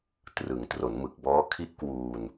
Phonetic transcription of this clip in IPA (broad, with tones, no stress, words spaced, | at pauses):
trɯ˩˦ŋ tro˩˦nmɯ˨˩k̚bɔː˦˥ kʰi˦˥ʔ kwuː˧n